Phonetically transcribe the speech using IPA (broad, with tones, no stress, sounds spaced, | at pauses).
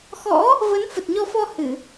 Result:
x ɔ̰˧˥ | v ə˨˦ n f ə˨˩ t̚ ɲ ɔ˧ f ɔ˧ h ɨ˧˩˨